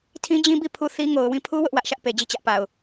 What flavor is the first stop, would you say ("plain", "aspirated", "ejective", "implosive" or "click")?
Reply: aspirated